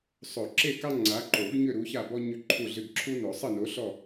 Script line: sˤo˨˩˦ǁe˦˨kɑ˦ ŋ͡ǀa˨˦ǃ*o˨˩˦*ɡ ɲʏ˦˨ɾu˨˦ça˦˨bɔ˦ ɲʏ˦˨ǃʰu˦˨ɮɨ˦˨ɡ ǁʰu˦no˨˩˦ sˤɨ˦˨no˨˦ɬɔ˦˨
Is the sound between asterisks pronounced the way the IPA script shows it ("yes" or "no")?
yes